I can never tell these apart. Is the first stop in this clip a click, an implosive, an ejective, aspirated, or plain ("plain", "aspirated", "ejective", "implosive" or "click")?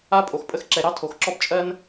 ejective